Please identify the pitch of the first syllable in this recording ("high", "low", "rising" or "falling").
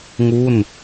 falling